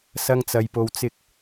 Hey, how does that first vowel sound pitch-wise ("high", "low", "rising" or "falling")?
high